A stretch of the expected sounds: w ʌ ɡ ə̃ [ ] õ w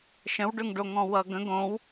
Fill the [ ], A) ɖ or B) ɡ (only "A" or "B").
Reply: B